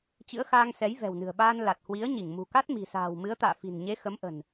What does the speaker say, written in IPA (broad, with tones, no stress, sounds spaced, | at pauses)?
t͡ɕ ɨ̰˧˥ ə̯ x aː˧ ŋ s ɛ˨˦ j v ɛ̤˨˩ w n ɨ̤˨˩ ə̯ ɓ aː˧ n l a˨˩ t̚ h w i˨˦ ə̯ ɲ i˧˩ ŋ m ṳ˨˩ k a˦˥ t̚ m i̤˨˩ s a̤ː˨˩ w m ɨ˨˦ ə̯ t̪ a̰ː˧˨ f i̤˨˩ n ɲ e˨˦ x ə˨˦ m ʔ ə̤˨˩ n